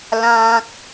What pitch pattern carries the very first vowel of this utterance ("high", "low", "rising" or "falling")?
low